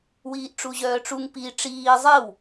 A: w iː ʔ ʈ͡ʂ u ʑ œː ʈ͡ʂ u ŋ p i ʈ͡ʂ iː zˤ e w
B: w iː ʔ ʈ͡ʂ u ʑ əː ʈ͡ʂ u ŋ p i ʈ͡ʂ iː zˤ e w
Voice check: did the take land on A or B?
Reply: A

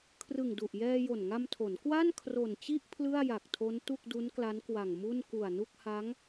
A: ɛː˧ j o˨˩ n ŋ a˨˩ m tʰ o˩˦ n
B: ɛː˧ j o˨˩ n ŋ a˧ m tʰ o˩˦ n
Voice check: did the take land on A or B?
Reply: B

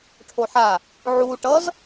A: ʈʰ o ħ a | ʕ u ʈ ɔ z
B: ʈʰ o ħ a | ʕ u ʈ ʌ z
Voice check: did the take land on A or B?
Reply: B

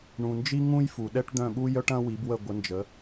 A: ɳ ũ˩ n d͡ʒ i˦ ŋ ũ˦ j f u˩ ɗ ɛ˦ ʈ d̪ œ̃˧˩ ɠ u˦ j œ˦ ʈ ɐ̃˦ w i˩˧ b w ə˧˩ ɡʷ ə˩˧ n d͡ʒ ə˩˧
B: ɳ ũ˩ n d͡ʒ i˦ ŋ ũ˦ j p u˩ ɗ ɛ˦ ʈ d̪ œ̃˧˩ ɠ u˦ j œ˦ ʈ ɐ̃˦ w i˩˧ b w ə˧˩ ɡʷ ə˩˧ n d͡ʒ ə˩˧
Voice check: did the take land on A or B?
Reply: A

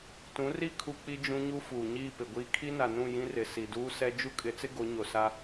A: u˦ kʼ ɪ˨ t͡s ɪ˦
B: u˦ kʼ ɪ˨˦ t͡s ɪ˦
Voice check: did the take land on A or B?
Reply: B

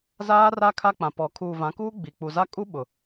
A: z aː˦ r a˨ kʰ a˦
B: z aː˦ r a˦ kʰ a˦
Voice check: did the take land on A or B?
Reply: B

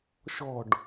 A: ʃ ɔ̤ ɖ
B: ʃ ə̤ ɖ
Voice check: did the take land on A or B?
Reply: A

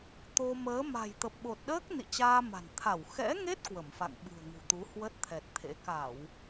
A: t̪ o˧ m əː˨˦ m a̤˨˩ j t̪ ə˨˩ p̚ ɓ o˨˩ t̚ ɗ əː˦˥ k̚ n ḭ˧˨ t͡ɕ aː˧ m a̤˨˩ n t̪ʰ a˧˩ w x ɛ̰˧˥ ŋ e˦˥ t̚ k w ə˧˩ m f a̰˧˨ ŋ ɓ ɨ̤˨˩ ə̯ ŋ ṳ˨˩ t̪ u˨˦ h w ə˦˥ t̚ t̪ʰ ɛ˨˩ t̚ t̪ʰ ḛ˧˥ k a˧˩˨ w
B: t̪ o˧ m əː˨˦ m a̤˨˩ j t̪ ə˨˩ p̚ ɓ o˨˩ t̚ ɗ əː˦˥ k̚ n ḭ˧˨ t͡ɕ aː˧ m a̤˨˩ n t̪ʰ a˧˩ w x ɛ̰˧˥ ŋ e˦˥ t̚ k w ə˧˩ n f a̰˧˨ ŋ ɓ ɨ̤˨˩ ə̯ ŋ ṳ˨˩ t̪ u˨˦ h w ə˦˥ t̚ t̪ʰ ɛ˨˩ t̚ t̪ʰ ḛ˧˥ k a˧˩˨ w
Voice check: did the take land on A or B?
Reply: A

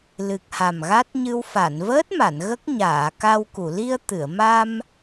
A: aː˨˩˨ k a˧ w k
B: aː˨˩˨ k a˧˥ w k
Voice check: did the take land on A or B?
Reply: A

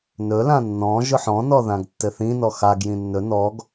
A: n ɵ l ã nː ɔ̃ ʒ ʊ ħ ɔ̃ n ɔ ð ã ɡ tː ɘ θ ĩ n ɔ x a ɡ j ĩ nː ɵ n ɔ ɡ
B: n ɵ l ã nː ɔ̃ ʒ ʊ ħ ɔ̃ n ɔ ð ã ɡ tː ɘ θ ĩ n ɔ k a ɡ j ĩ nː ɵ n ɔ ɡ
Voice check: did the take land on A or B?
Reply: A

